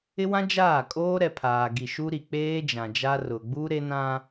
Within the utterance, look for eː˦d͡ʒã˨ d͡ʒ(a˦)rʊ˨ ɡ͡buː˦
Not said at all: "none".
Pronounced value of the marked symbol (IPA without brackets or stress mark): a˦